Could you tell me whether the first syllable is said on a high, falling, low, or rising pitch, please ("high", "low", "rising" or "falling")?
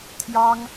high